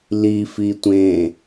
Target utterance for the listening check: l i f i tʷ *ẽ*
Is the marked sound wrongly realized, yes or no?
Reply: no